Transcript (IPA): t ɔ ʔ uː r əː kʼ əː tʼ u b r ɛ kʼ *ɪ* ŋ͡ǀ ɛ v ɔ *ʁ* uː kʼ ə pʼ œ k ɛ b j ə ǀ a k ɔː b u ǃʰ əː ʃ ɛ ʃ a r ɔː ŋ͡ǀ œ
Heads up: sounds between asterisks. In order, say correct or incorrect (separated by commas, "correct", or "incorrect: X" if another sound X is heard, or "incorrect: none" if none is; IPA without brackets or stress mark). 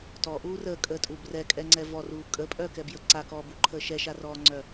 incorrect: ɛ, incorrect: r